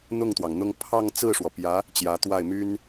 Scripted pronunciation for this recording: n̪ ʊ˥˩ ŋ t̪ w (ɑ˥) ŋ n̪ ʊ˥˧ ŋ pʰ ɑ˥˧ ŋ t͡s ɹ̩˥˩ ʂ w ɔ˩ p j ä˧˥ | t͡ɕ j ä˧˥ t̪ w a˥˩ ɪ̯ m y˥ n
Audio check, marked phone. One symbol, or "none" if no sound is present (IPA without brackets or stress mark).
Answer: ɑ˩